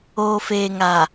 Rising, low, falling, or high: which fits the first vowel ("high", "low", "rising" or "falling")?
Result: low